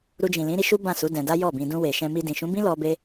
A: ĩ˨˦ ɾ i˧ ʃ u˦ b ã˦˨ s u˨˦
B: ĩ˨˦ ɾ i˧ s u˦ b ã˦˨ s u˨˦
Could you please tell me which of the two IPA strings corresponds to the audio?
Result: A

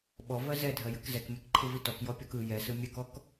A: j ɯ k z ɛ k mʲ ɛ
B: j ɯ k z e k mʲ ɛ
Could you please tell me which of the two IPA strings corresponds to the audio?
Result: A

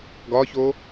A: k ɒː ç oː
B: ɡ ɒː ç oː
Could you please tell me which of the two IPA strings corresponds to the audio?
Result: B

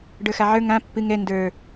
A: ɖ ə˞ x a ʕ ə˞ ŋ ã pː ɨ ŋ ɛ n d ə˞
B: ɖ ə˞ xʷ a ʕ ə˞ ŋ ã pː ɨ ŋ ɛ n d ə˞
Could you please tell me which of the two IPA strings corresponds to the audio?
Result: A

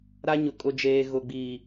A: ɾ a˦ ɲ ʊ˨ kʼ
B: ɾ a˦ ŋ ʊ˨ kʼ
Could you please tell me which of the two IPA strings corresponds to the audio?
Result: A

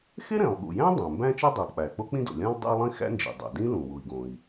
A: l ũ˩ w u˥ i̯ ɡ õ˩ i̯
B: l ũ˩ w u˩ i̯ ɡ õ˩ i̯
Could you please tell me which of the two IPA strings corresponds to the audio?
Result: B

